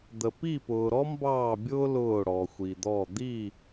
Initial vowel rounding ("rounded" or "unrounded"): unrounded